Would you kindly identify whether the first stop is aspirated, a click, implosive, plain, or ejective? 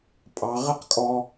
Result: ejective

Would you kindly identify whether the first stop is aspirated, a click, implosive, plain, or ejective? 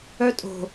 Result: ejective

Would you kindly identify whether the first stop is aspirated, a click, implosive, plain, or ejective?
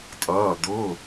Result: ejective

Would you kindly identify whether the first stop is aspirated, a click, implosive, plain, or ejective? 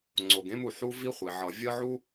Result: click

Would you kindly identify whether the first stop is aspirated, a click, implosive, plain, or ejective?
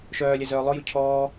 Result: aspirated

